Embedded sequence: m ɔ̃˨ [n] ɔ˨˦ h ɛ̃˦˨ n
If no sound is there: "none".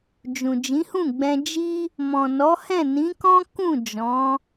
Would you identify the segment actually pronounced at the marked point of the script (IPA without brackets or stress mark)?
n